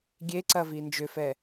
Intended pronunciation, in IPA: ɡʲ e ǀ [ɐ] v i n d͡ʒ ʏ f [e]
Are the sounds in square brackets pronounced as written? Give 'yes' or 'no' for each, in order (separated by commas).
yes, no